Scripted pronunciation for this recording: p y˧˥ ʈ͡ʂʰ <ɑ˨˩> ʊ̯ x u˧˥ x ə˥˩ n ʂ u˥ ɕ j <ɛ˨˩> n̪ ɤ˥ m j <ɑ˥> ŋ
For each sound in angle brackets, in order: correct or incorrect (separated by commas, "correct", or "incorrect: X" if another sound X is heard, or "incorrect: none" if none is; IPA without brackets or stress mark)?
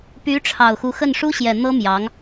correct, correct, incorrect: ɑ˧˥